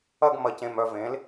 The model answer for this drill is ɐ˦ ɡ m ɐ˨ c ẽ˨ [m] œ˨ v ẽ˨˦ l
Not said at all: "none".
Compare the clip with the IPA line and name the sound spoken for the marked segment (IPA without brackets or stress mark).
m